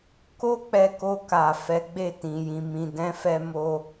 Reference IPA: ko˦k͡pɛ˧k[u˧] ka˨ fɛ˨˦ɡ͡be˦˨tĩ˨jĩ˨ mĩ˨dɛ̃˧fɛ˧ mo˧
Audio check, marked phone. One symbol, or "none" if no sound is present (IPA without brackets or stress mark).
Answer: o˧